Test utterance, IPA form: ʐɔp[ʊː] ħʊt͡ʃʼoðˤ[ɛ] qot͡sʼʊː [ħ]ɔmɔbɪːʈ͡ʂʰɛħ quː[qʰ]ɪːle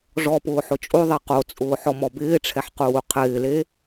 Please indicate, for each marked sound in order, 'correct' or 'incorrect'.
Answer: correct, incorrect, correct, correct

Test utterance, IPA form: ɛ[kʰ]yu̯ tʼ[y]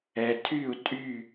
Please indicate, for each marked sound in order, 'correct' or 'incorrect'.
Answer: incorrect, correct

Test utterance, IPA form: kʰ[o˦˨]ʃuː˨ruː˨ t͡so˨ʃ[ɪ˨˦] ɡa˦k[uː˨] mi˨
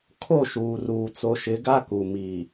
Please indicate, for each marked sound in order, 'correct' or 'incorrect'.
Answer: correct, correct, incorrect

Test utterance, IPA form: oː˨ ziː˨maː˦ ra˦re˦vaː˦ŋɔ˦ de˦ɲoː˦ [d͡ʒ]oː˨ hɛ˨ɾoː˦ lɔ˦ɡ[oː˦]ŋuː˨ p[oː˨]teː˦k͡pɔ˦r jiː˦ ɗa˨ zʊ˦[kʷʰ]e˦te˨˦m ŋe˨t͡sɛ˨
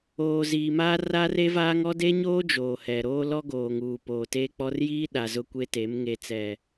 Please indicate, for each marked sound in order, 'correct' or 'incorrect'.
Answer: correct, incorrect, correct, incorrect

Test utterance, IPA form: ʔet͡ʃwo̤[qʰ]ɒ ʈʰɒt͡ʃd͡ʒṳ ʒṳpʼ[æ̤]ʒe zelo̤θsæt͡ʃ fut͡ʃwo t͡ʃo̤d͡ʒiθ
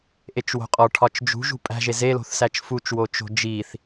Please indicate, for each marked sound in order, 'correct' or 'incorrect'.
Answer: incorrect, correct

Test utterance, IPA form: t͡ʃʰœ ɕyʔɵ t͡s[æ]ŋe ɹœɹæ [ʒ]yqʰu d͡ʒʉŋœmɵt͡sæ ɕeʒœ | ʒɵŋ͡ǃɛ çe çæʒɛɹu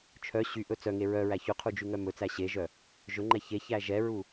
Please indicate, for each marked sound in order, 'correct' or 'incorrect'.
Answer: incorrect, incorrect

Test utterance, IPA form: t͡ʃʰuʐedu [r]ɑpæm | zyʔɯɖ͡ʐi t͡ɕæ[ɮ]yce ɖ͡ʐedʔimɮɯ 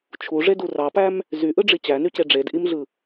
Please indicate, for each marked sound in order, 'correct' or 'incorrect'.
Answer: correct, incorrect

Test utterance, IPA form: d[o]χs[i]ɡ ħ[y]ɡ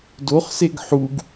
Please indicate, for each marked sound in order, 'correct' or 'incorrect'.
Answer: correct, incorrect, incorrect

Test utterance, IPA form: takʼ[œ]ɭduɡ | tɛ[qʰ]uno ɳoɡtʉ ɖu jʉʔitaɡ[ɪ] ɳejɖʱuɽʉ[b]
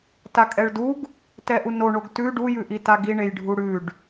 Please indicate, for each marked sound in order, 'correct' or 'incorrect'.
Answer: incorrect, incorrect, incorrect, incorrect

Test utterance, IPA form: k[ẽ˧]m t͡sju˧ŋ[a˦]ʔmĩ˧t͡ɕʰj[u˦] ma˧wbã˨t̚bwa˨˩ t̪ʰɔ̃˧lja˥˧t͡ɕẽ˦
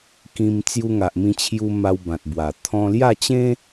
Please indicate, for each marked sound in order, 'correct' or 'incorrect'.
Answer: incorrect, incorrect, incorrect

